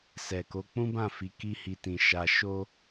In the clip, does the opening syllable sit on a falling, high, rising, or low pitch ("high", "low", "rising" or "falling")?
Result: low